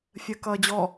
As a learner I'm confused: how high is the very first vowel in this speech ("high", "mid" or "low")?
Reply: mid